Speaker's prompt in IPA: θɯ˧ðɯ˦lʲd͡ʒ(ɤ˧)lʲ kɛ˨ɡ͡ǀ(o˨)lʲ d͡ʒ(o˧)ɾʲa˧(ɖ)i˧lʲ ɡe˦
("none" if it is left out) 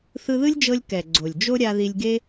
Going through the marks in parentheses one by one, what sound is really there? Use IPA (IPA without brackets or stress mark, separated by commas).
ɤ˧, o˨, o˦, ð